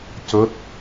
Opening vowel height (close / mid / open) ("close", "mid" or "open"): mid